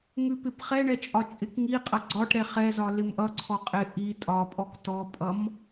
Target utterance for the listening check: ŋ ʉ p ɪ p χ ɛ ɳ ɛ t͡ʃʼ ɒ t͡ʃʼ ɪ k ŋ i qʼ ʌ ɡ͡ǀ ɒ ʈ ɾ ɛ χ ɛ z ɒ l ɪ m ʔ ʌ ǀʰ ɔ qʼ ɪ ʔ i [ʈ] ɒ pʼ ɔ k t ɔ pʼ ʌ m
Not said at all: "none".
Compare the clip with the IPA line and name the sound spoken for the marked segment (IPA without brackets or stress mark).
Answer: tʼ